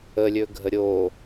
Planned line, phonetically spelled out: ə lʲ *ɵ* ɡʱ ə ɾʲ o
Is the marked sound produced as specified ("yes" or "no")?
yes